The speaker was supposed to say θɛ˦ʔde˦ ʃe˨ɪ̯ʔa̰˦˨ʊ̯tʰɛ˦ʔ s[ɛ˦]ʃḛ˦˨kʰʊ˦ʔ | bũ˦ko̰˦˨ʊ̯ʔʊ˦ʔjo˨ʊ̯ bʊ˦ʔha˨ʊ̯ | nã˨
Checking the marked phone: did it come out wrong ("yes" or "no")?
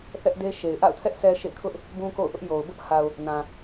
no